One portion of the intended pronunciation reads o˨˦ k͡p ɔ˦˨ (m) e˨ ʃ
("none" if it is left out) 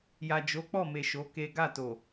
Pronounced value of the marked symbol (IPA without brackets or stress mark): m